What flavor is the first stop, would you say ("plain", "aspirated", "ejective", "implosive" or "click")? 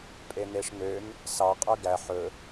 ejective